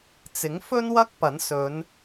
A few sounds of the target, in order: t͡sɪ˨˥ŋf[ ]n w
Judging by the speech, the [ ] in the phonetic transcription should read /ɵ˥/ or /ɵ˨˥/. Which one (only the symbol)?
ɵ˥